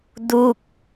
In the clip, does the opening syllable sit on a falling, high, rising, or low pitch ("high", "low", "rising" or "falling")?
falling